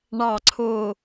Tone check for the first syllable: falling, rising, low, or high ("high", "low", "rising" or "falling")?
low